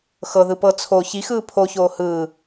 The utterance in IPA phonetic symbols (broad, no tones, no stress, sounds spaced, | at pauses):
x ɤ ð ɯ p ɤ t͡sʰ o ç i x ɯː pʰ o ç oː h ɯ